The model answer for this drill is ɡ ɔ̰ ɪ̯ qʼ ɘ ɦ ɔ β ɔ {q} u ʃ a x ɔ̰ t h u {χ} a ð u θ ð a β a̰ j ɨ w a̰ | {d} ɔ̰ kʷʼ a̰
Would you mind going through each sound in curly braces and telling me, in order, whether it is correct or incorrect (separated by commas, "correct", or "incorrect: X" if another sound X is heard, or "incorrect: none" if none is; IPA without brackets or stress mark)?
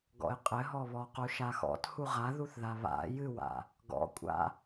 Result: correct, incorrect: ʁ, incorrect: ɡ